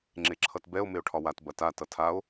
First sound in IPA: ŋ͡ǁ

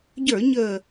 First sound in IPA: ɟ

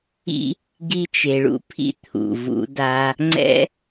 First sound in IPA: ḭ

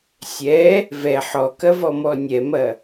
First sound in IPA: sʲ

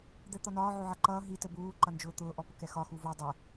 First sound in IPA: d̪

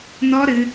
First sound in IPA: n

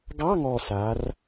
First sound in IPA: ɡ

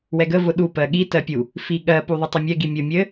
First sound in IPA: w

